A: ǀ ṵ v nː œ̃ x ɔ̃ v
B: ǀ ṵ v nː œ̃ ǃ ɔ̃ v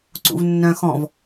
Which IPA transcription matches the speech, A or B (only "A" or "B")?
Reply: A